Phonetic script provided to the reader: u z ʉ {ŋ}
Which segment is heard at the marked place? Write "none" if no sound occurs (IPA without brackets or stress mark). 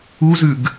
ɡ